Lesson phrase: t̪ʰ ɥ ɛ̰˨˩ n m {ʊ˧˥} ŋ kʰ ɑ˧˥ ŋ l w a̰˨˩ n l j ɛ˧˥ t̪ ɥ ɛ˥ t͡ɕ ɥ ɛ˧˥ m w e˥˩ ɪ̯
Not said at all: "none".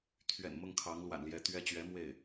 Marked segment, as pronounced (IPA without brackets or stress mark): ʊ˥˩